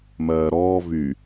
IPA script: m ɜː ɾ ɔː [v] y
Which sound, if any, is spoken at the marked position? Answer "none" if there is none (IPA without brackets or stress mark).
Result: v